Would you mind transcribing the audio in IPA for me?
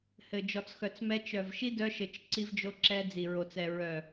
h ɘ˨ d͡ʒ ɔ˨ t͡s x œ˨ t͡s m ɛ˧ t͡ʃ œ˨ v ʃ i˦ d œ˧ ʃ ɘ˨ t͡ʃ ǀ i˧ v d͡ʒ o˧ ǁ ɛ˧ d͡z i˨ ɹ o˨ t͡s ɛ˨ ɹ œ˨

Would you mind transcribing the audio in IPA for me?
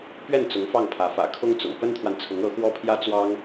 p ɥ ɛ˥˩ n t͡s ʊ˧˥ ŋ f ɑ˥˩ ŋ pʰ ä˧˥ f ä̰˨˩ kʰ ʊ˥ ŋ t͡s ʊ̰˨˩ ŋ p ə˥ n t̪ʰ w a˨ n t͡sʰ ʊ˧˥ ŋ ɤ˧˥ x w ɔ˥ pʰ j ä˥ t͡s w ɑ˥ ŋ

